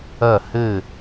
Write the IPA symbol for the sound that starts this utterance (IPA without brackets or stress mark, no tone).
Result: ɐ